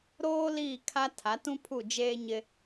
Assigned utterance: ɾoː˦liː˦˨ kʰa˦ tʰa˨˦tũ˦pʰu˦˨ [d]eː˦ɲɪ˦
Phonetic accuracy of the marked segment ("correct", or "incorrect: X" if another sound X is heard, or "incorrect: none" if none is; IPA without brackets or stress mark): incorrect: d͡ʒ